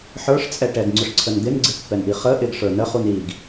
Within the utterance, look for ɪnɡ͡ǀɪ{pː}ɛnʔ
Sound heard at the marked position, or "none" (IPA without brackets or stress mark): pː